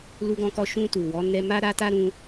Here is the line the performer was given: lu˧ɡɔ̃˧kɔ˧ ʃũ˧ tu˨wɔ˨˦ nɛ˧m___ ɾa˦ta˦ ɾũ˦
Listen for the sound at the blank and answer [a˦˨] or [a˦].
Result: a˦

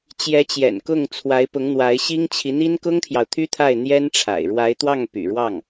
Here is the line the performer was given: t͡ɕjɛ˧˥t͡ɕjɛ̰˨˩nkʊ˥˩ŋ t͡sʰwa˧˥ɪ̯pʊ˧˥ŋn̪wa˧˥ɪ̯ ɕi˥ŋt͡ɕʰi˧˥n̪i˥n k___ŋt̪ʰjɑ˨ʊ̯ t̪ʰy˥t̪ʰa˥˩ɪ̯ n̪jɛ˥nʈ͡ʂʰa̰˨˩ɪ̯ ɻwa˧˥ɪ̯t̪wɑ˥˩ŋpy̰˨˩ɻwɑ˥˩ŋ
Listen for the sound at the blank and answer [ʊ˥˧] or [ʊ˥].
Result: ʊ˥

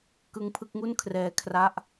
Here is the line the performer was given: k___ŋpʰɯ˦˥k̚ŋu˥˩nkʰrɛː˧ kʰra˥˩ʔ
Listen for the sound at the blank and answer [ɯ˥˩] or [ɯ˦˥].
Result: ɯ˦˥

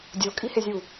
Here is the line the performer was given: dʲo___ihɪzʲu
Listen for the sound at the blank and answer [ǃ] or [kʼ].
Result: kʼ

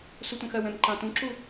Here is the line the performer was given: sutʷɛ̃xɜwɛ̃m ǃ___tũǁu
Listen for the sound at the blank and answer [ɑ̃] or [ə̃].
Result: ɑ̃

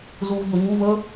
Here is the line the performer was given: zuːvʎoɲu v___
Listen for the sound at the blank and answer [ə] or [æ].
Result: ə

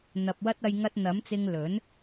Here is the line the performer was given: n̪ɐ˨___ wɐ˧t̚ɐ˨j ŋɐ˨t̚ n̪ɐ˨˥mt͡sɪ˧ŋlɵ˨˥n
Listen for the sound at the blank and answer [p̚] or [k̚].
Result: p̚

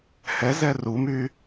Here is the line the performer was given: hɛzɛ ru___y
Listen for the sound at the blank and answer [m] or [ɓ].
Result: m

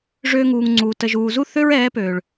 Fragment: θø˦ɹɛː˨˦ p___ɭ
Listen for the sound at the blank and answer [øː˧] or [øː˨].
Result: øː˨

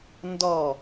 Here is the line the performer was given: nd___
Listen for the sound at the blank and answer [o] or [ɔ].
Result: ɔ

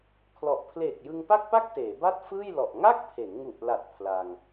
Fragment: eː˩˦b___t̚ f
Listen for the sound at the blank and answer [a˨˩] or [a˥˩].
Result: a˥˩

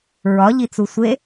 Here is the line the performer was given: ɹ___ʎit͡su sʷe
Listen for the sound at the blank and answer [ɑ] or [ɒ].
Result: ɒ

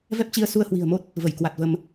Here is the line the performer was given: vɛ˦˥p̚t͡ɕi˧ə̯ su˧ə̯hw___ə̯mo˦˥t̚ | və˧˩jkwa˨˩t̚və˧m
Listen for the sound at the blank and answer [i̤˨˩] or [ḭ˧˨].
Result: i̤˨˩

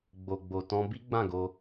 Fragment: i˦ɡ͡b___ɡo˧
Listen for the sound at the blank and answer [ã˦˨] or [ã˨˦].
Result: ã˦˨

